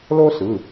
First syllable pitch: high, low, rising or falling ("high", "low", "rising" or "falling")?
high